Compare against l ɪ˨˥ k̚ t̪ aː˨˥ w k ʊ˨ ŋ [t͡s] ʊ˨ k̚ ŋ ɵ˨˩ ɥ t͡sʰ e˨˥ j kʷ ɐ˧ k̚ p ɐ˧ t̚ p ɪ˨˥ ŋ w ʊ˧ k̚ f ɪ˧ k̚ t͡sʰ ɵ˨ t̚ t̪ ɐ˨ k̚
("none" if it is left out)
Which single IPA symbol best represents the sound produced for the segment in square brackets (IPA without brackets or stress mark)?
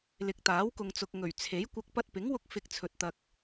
t͡s